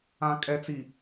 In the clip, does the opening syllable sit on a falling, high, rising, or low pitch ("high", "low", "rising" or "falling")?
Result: low